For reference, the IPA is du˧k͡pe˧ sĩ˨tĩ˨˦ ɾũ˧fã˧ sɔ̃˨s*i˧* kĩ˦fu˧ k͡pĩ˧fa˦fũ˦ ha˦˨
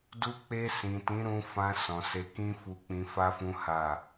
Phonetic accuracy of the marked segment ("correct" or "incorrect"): incorrect